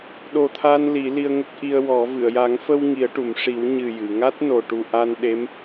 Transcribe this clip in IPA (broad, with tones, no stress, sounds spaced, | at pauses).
ɗ o˨˩ t̪ʰ a˧ n l i˨˩˦ l i˧ ə̯ ŋ ə˦˥ k̚ ʔ i˧ ə̯ w ɔ˨˩˦ v ɨ˨˩˨ ə̯ j a˨˩˦ ŋ f ə˧ w ŋ i˨˩˦ ə̯ ʈ u˨˩˨ m ʂ i˨˩˦ w ɲ ɨ˨˩ j ɨ˨˩˨ ŋ a˦˥ t̚ n o˨˩ ʈ u˨˩ ʔ a˧ n ɗ e˧˥ m